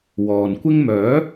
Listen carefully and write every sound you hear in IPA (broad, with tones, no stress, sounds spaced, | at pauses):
w ɔː˨ n kʷ ɪ˥ ŋ m œː˨˥